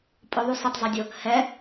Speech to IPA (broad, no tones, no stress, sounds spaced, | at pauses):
pʼ ʊ ðˤ u s ɪ tˤ zˤ ɛ dʲ ʊ | h ɛ